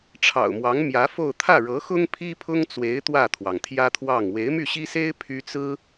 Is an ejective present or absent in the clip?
absent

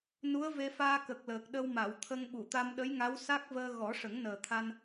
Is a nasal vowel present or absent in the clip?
absent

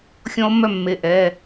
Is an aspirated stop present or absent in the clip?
absent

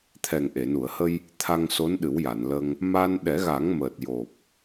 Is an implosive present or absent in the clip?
present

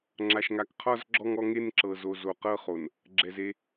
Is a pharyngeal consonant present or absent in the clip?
absent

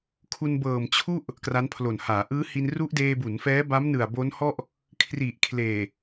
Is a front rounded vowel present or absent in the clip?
absent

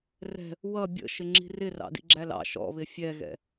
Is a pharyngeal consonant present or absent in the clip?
absent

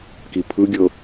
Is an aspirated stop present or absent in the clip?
present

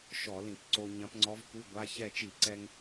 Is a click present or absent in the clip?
present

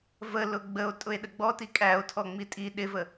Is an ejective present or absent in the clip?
present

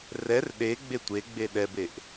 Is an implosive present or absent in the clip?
present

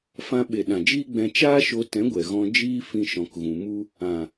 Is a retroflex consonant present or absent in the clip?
absent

